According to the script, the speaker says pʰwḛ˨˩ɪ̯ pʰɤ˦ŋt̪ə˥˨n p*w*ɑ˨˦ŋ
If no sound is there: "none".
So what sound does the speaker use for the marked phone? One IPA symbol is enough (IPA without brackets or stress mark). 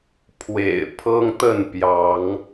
j